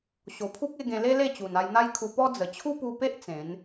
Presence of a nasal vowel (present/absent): present